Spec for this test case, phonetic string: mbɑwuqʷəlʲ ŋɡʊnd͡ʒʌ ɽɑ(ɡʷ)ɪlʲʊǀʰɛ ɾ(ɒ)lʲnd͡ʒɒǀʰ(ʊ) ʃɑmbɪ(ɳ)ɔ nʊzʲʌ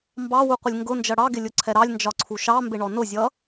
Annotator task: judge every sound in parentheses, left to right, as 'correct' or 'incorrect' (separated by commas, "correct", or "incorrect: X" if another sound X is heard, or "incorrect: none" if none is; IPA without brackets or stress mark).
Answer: incorrect: ɡ, incorrect: ɑ, incorrect: u, correct